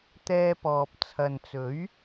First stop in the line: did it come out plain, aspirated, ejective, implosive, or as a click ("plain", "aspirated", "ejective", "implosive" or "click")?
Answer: plain